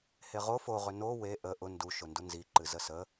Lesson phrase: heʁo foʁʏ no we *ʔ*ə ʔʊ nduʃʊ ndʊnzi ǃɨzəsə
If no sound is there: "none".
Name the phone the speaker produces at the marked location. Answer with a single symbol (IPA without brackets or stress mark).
ʔ